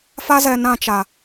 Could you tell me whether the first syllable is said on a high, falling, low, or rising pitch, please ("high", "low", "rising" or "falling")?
high